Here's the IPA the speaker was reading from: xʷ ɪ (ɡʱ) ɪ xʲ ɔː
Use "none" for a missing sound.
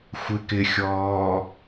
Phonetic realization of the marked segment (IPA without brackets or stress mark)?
k